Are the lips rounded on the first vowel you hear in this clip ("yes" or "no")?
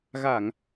no